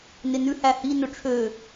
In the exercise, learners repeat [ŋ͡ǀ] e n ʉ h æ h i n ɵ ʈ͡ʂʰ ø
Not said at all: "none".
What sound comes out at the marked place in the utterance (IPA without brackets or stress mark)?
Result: n